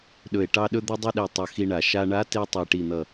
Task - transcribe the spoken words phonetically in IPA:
ɗɵ˨˩e̯ʈɑ˧ ɗɵ˧d̪ɵ˧dˤɵ˧ɗe˨˩ tˤʌ˧xi˧ɳa˨˩ ʃa˧ɳa˧˥ te˧tˤe˨˩ ʈi˨˩n̪ʌ˨˩

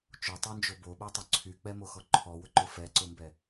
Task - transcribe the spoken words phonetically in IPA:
t͡ʃotˤond͡ʒo boɓotˤʊ ǀʰyk͡pɛmoxɔ ǃʰɔwʊǃʊ fɛǀʊmbɛ

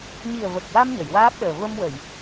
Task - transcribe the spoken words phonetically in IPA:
ɲi˨˩ə̯və˨˩k̚wa˧m ɲə˨˩˨jwaː˦˥p̚ɗəː˨˩ və˧mwə˨˩˨j

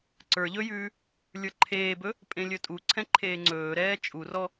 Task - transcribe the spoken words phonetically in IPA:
ǀə˞ ʎɵjʉː | lʲə˞ǃʰeːbɵ | pʼẽlʲɵtʼuǀʰɛ̃ ǃʰeːŋ͡ǀɵːɾɛː t͡ʃʼurɔ

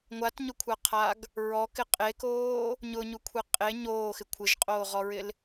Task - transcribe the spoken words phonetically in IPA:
ŋʷatɲʊkʷʰaqʰaɡ | ɹɔkɪ qʼekoː | ɲʊɲukʷʰe qʼe ɲoːxɪ kʷʰɪʒqʼoːʁɔɹɪl

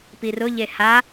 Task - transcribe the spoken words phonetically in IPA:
pirʊ ʎeha

